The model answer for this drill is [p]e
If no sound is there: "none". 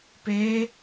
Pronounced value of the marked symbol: p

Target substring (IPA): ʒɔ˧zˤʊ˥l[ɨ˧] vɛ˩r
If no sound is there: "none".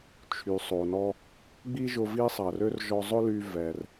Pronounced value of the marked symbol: y˧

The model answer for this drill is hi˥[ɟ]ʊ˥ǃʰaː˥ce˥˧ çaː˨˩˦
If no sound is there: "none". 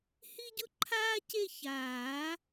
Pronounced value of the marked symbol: ɟ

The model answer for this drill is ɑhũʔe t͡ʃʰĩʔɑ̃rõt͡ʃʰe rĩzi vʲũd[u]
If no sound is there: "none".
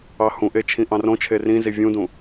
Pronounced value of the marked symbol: ũ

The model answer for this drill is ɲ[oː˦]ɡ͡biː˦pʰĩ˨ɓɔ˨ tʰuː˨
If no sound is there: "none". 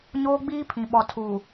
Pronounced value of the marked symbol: oː˦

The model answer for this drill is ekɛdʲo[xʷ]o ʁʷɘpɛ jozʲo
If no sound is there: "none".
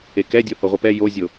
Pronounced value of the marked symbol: h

